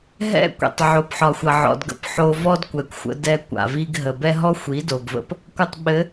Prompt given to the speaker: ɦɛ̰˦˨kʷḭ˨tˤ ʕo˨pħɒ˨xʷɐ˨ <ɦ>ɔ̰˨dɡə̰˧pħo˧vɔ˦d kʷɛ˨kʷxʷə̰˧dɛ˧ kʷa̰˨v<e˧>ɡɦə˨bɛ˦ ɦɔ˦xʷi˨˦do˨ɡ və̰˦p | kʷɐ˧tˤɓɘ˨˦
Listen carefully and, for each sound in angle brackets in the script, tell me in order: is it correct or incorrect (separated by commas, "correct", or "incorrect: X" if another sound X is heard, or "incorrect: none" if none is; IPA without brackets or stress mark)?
incorrect: ʕ, incorrect: i˧